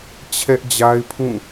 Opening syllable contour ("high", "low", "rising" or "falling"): high